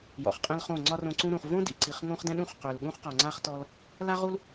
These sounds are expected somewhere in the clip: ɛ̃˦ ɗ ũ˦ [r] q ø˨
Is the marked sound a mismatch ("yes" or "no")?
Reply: yes